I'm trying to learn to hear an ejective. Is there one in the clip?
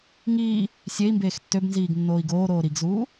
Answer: no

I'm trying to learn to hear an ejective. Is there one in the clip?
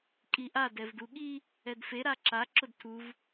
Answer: yes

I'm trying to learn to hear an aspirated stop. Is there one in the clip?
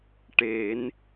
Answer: no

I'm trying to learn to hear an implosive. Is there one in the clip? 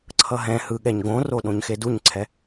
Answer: yes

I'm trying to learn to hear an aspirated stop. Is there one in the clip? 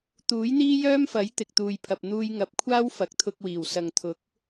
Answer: yes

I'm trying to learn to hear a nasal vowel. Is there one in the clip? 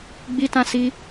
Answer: yes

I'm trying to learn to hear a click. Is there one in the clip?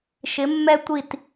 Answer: no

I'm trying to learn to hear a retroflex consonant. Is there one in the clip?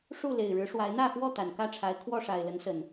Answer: yes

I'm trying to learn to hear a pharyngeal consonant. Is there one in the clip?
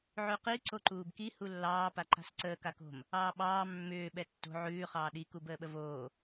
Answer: yes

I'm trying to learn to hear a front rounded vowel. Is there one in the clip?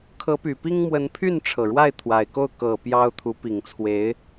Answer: yes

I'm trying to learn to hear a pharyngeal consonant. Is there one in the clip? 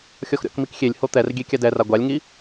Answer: no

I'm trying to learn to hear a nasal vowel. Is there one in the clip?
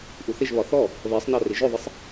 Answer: no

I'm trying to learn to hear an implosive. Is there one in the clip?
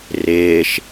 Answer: no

